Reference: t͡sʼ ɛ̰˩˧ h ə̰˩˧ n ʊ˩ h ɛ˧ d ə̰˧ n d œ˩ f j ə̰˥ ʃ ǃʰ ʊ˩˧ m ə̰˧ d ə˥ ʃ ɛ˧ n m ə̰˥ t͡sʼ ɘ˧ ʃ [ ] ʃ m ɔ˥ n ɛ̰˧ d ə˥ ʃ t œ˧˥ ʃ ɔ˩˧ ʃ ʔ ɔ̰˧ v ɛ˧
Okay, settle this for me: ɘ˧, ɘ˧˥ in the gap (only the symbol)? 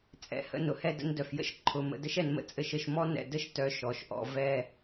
ɘ˧